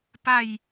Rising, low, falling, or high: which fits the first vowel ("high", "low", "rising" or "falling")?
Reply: falling